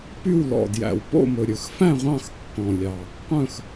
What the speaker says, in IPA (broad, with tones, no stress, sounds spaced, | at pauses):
p y˥˨ w l ɔ̰˨˩ d j æ̰˨˩ w p o̰˥˨ m ɵ˨˩ ɾʲ ɵ˨˩ x f æ̃˥˨ ʁʷ ɑ̃˥˨ x kː ɔ̃˨˩ lʲ ɑ˨˩ | qʷ œ̃˥˨ x